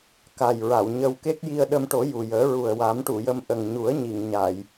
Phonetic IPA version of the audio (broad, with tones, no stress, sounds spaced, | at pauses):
k a˨˩ j ɹ a˨˩˨ w ɲ ə˧ w k e˦˥ k̚ j i˧ ə̯ ɗ ə˧ m ʈ o˨˩˦ j u˨˩ j əː˨˩˦ ɹ u˨˩ ə̯ w a˨˩˦ m ʈ u˨˩˨ j ə˧ m ʔ ə˨˩ ŋ ɲ u˨˩˦ ə̯ ɲ i˨˩˨ ŋ ɲ a˨˩˨ j